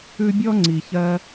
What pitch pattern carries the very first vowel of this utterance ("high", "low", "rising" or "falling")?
high